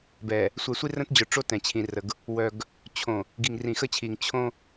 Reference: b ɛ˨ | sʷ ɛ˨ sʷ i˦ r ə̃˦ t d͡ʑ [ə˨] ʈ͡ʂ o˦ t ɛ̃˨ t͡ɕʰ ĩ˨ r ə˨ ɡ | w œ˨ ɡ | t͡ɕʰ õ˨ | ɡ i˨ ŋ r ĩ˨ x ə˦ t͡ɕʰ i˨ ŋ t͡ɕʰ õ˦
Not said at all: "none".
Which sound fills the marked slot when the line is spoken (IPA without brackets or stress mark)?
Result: œ˨